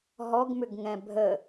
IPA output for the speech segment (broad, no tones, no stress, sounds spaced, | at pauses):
ɦ ɔ ɡ m ʏ ɡ ŋ ɛ̃ bʱ ə